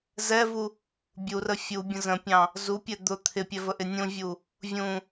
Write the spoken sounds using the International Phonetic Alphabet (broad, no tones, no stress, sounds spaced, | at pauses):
z ɛ v u | bʲ u r ə fʲ u bʲ ə̃ z ə̃ pʲ ɑ̃ | z u pʲ ɛ d̪ ʊ t̪ʰ ɪ pʲ ɛ v ə ʔ ɪ nʲ ũ vʲ u | vʲ ũ